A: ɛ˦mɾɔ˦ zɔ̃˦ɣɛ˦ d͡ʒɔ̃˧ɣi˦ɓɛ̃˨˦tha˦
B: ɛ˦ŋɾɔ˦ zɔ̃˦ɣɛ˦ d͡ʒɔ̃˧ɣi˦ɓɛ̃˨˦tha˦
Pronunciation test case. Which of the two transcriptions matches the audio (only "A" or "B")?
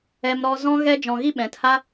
A